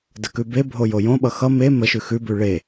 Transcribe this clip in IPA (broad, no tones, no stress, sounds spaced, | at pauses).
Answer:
d ə k ʉ b e bʱ o j o j õ ɓ ʌ x ʌ m e m ə ʃ ʉ x ʉ b ʉ ɭ e